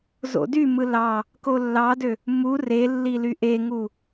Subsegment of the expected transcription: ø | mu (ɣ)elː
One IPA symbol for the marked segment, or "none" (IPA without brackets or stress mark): r